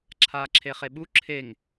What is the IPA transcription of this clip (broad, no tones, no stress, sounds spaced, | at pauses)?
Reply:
ǁʰ aː ǁʰ e χ e ɓ u ǁʰ e ŋ